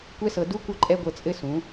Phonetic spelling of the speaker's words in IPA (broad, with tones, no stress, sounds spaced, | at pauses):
kʷ ɛ˦ s ɤ˧ d u˦ kʷ ɤ˦ ǃʼ ɛ˦ ɡʷ ɤ˧ t͡sʼ ɘ˦ s ũ˨˦